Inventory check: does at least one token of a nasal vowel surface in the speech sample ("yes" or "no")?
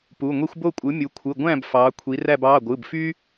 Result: yes